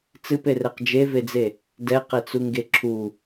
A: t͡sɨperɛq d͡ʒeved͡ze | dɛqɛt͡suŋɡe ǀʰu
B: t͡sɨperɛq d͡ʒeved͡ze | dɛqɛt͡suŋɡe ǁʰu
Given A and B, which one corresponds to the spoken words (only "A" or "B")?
B